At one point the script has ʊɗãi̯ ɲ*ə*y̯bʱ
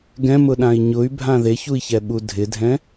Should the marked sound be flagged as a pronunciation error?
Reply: yes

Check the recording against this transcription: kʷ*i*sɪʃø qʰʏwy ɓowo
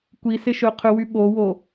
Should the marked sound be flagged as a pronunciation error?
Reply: no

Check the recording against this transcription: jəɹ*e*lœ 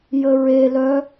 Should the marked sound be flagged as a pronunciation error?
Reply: no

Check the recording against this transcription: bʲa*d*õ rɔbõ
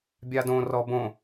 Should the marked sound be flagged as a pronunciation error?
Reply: no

